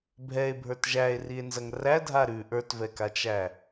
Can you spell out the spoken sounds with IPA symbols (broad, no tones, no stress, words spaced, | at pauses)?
bʱɛe̯bʱə˞t ʒæe̯rie̯nzɐŋ rædʱa ɾʉ ʔə˞tvɛkat͡ʃæ